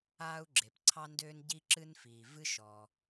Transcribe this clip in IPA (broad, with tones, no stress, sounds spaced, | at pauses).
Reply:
aː˥ u̯ ɡ͡ǁ e˩ p ǀʰ ɑ˥ n d øː˥ n ɟ i˥ ǁ ɨ˥ n f iː˩ v ɨ˥ ʃ ɔ˩